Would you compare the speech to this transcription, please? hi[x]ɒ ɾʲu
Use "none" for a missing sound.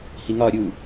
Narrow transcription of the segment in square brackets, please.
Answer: ŋ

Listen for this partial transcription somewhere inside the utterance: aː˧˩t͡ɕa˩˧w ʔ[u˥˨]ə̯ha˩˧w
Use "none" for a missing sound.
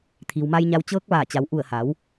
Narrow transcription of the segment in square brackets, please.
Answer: u˧˩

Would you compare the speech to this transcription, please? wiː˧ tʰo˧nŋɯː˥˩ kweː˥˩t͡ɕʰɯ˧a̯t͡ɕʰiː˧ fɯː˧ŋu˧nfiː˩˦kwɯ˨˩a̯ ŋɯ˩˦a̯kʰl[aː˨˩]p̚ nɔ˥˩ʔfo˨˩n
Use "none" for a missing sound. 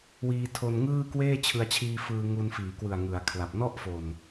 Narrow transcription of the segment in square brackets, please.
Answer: a˨˩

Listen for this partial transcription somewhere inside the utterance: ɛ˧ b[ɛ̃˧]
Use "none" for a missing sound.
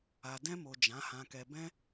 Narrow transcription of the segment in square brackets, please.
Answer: ɛ̃˧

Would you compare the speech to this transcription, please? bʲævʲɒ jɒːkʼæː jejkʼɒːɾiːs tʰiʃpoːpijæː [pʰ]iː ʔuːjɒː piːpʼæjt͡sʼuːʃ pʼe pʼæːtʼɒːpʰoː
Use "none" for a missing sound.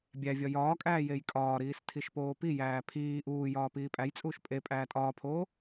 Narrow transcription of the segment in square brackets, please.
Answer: pʰ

